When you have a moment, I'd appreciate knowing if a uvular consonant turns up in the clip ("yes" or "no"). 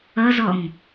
no